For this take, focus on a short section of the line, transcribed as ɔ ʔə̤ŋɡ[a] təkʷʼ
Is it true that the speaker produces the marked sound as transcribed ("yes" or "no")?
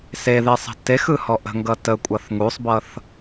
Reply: no